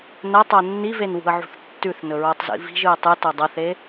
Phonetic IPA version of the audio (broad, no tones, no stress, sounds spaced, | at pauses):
n ɐ tˤ o nː i v e n w ṳ ə̯ ʕ ṳ θ tː ʉ θ n ɵ ɹ o tˤ z ḭ v i̤ ʒ ɨ ɪ̯ tˤ ɨ t o dˤ ɐ θ e